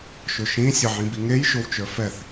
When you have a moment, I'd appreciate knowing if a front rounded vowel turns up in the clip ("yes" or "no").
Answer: no